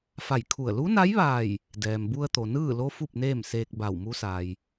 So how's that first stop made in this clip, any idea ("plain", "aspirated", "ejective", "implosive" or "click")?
aspirated